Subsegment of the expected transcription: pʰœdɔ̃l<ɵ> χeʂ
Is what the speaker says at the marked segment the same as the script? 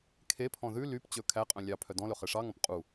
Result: yes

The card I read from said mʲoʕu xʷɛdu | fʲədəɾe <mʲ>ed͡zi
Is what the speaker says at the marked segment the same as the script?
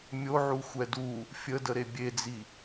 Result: no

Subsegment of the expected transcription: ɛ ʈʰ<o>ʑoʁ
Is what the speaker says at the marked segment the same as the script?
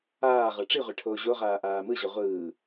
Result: no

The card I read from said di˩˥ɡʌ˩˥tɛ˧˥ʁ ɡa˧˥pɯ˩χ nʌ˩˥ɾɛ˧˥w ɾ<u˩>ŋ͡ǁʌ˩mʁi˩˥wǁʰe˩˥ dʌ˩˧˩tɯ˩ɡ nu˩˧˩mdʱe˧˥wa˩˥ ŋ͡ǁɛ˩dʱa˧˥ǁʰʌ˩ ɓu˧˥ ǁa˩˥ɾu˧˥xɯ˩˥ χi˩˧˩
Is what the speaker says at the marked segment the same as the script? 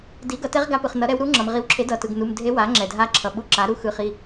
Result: no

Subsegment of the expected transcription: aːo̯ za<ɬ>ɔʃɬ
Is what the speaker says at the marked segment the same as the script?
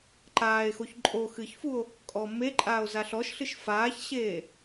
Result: yes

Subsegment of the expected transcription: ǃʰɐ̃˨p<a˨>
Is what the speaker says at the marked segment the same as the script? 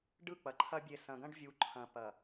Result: no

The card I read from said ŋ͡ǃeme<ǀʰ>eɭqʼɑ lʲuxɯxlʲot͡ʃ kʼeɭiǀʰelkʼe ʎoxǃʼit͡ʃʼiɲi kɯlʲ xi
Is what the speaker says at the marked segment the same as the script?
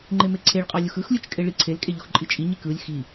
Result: yes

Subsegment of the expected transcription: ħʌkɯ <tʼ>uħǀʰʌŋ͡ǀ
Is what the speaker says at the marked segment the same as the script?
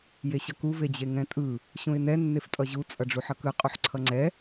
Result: no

